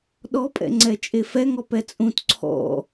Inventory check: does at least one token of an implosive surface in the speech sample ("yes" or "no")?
yes